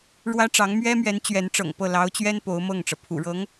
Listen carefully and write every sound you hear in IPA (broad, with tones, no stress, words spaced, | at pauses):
ɻwä˥ʈ͡ʂɑ˧˥ŋ mɥɛ˥mɥɛ˧˥n t͡ɕɥɛ˧˥nʈ͡ʂɤ̰˨˩ŋpɤ˥˩ lɑ˧˥ʊ̯t͡ɕɥɛ˥n po˧˥ʊ̯mɤ˥˩ŋʈ͡ʂɤ˩ pʰṵ˨˩ɻɤ˧˥ŋ